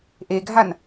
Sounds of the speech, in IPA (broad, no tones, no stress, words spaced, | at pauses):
ʔeɡʱan